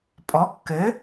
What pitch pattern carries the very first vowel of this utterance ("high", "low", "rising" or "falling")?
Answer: rising